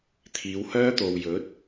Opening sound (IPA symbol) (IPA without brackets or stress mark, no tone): t̪ʰ